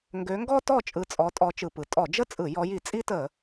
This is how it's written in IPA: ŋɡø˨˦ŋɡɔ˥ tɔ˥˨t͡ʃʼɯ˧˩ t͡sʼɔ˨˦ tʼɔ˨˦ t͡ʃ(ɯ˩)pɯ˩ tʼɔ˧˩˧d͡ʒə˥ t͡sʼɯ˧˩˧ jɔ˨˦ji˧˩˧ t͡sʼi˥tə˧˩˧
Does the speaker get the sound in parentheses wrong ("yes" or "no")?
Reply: no